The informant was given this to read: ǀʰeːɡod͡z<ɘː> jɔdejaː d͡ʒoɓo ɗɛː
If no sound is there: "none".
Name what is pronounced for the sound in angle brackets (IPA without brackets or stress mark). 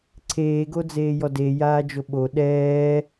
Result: eː